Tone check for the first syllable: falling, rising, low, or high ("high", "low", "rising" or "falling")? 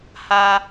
high